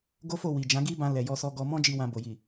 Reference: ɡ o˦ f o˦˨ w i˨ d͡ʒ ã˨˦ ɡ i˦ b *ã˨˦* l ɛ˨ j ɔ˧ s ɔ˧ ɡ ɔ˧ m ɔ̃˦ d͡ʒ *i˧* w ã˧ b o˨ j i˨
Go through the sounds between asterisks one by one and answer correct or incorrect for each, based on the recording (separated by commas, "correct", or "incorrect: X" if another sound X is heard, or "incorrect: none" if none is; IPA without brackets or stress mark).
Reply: incorrect: ã˧, correct